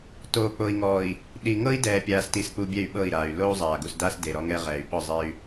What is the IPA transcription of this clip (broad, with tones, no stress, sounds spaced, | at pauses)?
t oː˨ k͡p o˨ i̯ ŋ ɔː˨ i̯ | ɗ i˨ ŋ ɤ˦ i̯ d ɛː˨ pʲ aː˨ s t i˨ s k͡p u˨ bʲ ɛ˦˨ y̯ ɓ ɤ˦˨ i̯ ɾ aː˨ y̯ l o˦ u̯ zˤ aː˨ ɡ u˨ s d aː˦ s d e˨ ɾ ɔ˦ ŋ ɛ˦ ʁ ɛː˨ y̯ ɓ ɔ˦˨ zˤ e˦ y̯